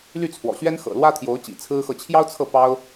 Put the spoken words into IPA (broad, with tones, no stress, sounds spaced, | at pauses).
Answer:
l y˥˩ t͡sʰ w ɔ̰˨˩ ɕ ɥ ɛ˥ n x ɤ̰˨˩ l w ä˥ t̪ʰ j o˧˥ ʊ̯ t͡ɕ ḭ˨˩ t͡sʰ ɹ̩˥ x ɤ˥˩ t͡ɕʰ j ɑ˥ ʊ̯ t͡sʰ ɤ˥˩ p ɑ˥ ʊ̯